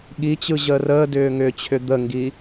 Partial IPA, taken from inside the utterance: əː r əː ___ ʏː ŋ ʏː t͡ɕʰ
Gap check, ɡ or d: d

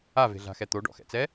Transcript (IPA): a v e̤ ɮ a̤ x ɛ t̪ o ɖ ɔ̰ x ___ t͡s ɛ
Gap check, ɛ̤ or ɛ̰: ɛ̰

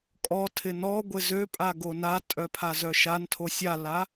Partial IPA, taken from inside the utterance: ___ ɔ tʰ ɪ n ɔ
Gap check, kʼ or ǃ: kʼ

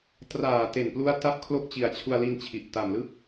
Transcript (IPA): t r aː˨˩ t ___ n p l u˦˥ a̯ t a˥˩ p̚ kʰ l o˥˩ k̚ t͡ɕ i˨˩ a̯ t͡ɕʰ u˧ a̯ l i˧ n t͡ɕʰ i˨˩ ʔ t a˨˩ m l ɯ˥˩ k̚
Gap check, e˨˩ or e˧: e˨˩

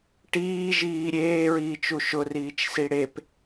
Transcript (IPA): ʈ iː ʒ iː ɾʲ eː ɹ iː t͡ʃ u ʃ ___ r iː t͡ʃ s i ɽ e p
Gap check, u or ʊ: ʊ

